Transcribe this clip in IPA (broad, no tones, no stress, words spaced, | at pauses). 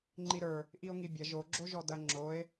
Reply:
ŋ͡ǃiɾə˞ | ʔio̯ŋibʲɐ ʒo ɡ͡ǁoʒɔdɐ ŋ͡ǁoe̯